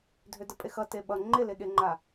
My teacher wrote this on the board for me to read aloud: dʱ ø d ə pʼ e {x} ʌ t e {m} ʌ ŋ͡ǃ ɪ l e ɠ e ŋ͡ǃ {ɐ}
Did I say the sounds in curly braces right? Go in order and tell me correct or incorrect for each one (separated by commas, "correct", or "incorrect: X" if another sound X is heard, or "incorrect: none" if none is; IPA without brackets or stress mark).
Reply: correct, incorrect: ɓ, incorrect: a